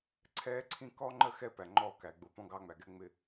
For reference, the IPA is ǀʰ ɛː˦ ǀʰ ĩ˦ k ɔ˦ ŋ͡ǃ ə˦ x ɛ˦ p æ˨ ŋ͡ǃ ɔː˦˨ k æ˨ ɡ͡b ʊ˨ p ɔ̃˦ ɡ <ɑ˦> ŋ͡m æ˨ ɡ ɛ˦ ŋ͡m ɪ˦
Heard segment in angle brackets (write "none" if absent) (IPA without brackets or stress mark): ɑ˦